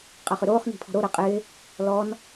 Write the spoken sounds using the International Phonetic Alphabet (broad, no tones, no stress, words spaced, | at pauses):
qʼɐχʏɾoːχ ni̤pʰɔ̤ɾo ɾɜqʼɪː | lɔn